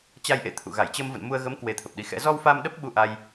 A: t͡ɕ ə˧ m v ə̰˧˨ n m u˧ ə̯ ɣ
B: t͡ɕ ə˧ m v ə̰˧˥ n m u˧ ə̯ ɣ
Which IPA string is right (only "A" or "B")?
A